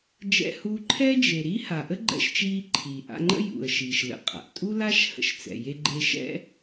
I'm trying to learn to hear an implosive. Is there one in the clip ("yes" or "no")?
no